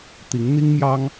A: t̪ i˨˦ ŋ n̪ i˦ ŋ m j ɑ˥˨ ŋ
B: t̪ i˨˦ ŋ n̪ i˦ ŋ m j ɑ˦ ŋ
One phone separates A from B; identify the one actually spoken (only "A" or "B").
B